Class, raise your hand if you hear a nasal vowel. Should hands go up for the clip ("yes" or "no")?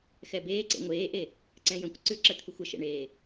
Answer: yes